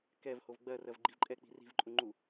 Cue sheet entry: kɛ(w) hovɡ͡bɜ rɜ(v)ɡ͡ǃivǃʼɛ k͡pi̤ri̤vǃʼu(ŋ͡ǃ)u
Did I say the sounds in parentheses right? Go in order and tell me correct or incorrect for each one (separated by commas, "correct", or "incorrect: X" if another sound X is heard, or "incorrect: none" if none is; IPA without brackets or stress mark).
incorrect: v, correct, correct